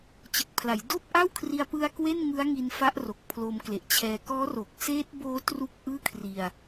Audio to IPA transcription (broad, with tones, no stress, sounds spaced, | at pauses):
t͡ɕ ɯ˨˩ k̚ pʰ l a˩˦ j d oː˥˩ p̚ ʔ a˥˩ w kʰ r i˧ a̯ p ɯ˧ a̯ k w e˥˩ n ŋ ɯ˦˥ a̯ ŋ i˧ n f a˦˥ ʔ r o˨˩ k̚ pʰ l o˧ m k l e˨˩ ʔ t͡ɕʰ ɛː˧ k ɔː˦˥ r o˨˩ k̚ s eː˦˥ t̚ b oː˦˥ t r u˥˩ k̚ ʔ ɯː˥˩ kʰ r i˧ a̯